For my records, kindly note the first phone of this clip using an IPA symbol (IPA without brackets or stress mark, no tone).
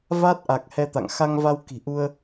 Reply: v